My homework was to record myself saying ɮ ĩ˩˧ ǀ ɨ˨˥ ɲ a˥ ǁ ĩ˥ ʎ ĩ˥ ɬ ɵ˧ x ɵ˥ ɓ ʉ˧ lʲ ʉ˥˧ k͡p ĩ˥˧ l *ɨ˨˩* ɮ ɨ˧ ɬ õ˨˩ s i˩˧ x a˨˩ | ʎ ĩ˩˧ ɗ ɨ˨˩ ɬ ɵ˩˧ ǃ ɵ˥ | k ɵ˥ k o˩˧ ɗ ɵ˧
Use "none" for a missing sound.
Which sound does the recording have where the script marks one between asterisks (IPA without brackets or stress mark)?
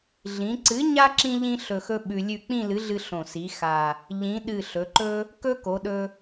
ɨ˨˥